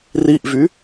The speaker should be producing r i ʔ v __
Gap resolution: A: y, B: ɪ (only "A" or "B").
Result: A